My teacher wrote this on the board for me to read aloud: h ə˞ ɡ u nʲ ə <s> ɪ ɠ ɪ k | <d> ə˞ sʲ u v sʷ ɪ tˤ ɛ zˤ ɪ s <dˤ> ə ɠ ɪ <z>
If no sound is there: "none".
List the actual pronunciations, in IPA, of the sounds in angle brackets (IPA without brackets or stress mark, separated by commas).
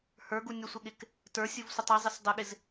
sʷ, t, dˤ, z